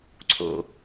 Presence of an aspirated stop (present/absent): present